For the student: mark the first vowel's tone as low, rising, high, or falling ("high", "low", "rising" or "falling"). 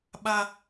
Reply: high